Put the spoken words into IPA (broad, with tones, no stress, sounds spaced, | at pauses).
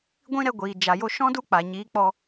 ɡʷ ĩ˦ ɾ ɛ˧ ɡʷ iː˨ d͡ʒ a˨ j o˧ ʃ ɔ̃˦ d u˦ k͡p a˨ ɲ iː˨˦ k͡p ɔ˧